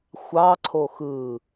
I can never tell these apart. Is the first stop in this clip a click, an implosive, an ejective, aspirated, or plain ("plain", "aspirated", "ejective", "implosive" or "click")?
click